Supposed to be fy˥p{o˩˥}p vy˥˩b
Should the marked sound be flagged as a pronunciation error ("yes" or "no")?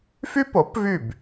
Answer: no